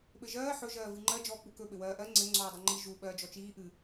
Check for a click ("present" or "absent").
present